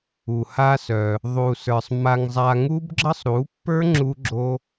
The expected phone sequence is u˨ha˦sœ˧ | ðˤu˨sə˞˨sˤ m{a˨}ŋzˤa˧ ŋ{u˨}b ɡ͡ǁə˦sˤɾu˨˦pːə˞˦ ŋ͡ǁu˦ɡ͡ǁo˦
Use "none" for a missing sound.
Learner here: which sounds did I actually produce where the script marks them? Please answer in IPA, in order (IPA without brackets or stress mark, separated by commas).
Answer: a˧, u˦